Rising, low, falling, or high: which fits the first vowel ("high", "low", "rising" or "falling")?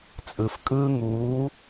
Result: low